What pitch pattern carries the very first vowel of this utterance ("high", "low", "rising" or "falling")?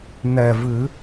low